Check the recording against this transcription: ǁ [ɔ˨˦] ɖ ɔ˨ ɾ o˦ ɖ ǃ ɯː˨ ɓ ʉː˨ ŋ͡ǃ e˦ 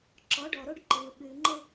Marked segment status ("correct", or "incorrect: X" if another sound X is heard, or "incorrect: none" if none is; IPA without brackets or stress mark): correct